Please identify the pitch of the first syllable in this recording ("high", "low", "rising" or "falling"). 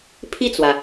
falling